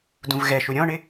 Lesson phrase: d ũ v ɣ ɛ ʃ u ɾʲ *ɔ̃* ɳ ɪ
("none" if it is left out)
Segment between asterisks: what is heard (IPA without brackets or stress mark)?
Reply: ɔ̃